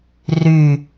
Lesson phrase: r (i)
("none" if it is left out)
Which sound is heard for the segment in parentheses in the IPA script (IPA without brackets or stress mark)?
y